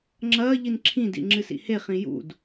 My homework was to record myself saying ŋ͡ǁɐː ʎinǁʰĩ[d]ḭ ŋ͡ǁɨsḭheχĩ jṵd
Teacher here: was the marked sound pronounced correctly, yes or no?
yes